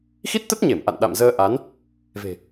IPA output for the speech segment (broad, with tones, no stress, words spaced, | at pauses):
xi˦˥t̚t̪ə˦˥t̚ɲe˧˩m ʔa̰˧˨n ɗa̰˧˨mzəː˧ʔa˨˦n | ve̤˨˩